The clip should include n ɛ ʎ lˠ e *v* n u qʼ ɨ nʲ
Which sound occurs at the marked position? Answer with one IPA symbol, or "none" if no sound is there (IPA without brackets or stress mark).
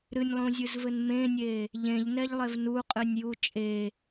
v